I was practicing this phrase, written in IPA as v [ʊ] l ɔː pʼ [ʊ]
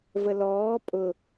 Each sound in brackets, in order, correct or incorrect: incorrect, correct

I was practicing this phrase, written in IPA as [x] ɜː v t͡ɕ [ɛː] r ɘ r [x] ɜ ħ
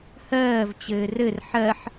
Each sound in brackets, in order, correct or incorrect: incorrect, incorrect, incorrect

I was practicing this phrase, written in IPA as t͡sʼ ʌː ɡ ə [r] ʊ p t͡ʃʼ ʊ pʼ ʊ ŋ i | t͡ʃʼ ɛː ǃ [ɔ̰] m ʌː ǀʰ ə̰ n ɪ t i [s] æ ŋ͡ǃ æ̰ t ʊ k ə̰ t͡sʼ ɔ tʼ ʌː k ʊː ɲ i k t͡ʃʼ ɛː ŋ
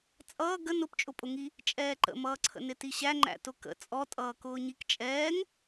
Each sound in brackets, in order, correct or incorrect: incorrect, incorrect, incorrect

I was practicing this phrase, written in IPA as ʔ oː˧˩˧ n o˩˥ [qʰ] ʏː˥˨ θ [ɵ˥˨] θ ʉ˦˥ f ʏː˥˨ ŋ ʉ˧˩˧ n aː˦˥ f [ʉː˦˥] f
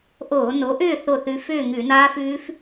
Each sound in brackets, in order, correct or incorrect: incorrect, incorrect, correct

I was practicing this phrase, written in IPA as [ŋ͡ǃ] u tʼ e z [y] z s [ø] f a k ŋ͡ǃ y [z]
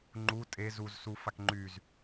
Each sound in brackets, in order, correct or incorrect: correct, incorrect, incorrect, correct

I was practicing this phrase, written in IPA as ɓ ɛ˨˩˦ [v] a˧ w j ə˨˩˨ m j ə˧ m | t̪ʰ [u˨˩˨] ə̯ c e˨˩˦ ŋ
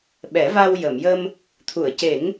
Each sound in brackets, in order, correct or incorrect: correct, correct

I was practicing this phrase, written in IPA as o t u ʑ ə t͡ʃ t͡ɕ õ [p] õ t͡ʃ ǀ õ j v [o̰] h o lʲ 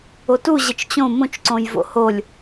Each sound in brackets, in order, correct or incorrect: incorrect, correct

